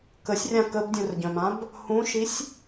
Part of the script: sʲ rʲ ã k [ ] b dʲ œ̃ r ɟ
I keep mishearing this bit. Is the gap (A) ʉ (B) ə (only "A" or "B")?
B